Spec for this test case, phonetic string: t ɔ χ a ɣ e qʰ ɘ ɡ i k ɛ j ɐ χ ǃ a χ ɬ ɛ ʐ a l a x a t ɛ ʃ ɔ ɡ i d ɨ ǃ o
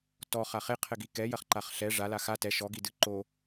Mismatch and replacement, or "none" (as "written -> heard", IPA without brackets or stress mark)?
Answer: ɣ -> χ